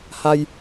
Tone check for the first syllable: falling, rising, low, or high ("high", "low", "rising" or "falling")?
high